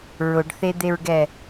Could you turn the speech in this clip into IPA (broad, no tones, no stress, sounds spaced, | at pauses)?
ɹ ʊ ɖ θ e d̪ e ɹ ɡ ɛ